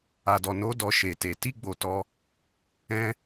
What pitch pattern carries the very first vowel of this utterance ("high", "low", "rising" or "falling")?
low